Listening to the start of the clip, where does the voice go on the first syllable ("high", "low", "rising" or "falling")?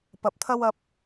low